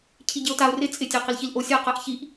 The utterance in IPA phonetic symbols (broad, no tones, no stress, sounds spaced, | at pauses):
cʰ i ɟ e o̯ t a o̯ r ɪ t͡sʼ ɪ tʲ a q ɪ l ç i l ʔ o sʲ a q a ʔ ç i ʔ